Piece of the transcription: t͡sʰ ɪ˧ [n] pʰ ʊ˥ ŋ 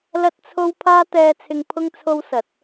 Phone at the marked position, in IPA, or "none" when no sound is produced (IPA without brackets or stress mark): ŋ